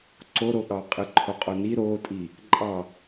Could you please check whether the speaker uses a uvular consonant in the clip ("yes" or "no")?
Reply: yes